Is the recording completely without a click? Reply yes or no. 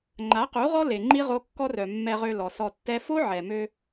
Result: no